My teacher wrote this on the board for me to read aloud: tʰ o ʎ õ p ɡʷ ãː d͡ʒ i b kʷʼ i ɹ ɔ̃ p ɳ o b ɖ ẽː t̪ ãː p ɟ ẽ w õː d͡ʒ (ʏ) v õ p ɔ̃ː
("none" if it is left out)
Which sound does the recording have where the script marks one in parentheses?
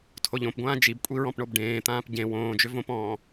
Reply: ʏ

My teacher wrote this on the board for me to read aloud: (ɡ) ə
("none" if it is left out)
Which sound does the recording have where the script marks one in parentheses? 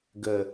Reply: ɡ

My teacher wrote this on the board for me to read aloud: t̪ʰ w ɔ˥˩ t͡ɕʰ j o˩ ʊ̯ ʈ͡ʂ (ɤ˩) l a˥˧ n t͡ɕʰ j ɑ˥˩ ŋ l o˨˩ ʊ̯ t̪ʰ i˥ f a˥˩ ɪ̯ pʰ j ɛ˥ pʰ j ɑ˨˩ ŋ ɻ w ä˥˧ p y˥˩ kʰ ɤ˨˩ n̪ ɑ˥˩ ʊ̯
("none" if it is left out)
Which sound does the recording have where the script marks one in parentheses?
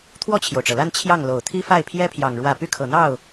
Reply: ɤ˩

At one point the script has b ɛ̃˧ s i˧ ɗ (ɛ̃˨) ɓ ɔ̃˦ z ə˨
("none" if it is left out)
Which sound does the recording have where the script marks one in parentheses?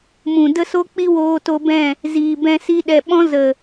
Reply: ɛ˨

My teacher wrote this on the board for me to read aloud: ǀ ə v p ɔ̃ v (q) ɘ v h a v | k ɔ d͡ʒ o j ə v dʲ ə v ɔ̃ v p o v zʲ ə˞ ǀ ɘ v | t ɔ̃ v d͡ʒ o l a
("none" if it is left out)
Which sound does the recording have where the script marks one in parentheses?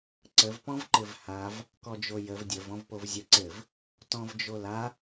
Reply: ǃ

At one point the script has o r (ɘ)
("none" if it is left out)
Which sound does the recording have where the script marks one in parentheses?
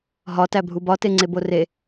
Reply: e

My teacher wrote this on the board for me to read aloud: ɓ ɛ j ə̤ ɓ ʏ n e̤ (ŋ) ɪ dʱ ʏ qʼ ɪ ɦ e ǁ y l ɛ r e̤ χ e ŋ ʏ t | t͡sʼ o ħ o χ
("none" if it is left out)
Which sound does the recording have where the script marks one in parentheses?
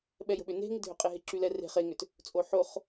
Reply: ŋ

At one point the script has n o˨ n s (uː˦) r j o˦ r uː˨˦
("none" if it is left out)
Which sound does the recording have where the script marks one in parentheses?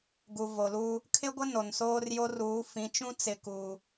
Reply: oː˦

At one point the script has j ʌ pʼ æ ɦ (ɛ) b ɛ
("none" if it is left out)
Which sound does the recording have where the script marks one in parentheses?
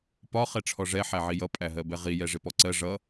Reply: ɜ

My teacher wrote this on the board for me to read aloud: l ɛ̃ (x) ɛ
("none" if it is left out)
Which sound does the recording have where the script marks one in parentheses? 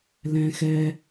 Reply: x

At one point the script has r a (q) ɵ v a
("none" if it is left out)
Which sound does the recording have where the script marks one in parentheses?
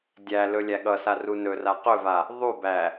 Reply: q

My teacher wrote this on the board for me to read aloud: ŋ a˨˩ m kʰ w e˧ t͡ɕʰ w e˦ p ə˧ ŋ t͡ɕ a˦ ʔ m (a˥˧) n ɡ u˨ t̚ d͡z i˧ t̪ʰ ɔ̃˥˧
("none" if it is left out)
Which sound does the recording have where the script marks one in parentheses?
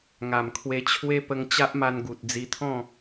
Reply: a˧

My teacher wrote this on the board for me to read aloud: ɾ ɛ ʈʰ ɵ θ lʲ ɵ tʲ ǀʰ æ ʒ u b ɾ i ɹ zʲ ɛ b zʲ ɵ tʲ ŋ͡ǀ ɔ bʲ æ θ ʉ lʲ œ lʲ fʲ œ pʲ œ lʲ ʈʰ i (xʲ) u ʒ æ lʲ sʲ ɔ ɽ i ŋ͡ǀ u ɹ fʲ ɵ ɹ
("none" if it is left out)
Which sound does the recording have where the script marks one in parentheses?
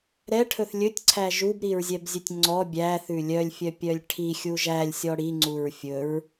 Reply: xʲ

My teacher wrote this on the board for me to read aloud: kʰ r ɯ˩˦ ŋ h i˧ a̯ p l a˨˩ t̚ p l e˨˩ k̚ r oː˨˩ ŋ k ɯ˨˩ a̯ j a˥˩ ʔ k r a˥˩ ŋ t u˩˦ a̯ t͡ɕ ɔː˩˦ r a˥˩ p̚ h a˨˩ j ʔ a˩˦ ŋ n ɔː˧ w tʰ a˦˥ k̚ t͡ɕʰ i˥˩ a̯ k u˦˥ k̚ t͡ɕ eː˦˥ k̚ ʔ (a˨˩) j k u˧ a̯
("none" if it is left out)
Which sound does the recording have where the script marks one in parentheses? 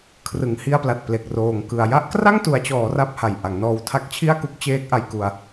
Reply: a˧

